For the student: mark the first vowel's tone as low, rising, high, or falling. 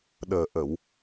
low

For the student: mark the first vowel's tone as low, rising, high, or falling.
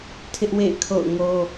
high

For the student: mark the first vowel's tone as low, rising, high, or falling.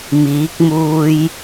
rising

